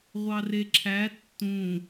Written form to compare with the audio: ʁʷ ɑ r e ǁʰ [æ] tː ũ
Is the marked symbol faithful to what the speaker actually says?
yes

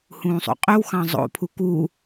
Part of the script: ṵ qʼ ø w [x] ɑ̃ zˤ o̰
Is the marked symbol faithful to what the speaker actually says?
yes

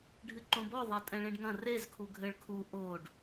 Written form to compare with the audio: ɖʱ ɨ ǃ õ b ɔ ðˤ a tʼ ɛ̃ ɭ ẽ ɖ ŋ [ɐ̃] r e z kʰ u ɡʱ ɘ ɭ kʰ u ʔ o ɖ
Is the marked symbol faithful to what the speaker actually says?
yes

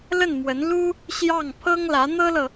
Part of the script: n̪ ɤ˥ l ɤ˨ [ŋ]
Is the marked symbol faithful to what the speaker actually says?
no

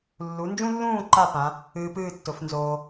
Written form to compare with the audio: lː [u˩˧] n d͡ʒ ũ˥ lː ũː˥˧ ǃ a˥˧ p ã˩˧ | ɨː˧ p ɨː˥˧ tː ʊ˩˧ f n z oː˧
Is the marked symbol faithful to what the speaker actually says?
yes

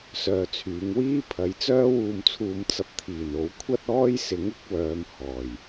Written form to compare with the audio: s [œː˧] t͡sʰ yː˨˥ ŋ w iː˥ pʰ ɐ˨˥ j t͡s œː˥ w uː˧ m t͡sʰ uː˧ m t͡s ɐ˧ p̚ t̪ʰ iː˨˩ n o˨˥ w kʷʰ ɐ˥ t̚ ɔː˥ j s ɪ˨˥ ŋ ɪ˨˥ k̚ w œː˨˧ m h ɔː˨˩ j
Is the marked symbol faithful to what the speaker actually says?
yes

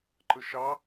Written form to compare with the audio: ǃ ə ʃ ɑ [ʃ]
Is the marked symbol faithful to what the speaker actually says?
no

